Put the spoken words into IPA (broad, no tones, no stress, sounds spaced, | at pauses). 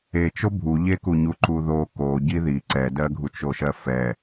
e t͡ʃ o bʱ u ʎ e k u ɲ u ǃ u ð o k o ɟ i ð i ǀ ɛ d ɜ ɡʱ u t͡ʃ o ʃ ɜ f ɛ